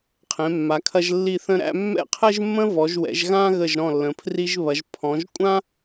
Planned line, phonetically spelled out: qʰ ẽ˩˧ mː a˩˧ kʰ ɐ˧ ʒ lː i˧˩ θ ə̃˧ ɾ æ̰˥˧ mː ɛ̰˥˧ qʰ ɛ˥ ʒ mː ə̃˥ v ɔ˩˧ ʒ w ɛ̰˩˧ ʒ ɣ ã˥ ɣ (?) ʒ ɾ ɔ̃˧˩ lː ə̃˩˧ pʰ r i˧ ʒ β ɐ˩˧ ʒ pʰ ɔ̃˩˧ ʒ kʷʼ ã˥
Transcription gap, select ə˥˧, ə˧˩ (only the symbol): ə˧˩